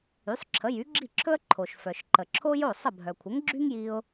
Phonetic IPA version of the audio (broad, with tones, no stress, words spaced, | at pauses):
y˩˥sˤǁʰə˩˥ jy˩˥ɡ͡ǁi˥˩ǁʰɵ˥ə̯ ǃʰo˩ʃ fœ˩ʃǃə˩ ǁʰo˥jo˥˩ sˤə˥˩ bʱœ˩kʷʰə˩˥ŋɡ͡ǁy˥ŋ ji˧ʊ̯